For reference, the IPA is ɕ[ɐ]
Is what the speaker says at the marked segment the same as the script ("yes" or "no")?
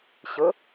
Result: no